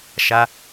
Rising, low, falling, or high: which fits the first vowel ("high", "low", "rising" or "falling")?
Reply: high